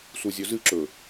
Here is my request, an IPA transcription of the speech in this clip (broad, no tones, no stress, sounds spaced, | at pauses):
s u zʲ ɵ z ɨ ǁ ɵ